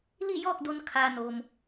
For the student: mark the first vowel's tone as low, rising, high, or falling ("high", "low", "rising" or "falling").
falling